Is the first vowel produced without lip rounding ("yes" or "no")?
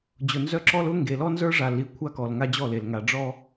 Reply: no